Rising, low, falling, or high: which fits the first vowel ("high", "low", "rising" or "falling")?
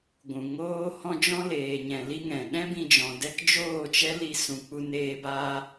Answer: low